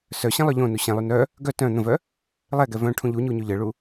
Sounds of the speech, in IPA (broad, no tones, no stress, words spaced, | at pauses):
sœɕɛ̃ lˠœʎõnu ɕɛ̃lˠy nœ | ɡœ tœ̃ n̪ə̃vœ | lˠɛɡɛ vœ̃ ʈʰũʎuɲu ɲyʎəɭu